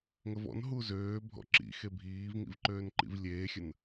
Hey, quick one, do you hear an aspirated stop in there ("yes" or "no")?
no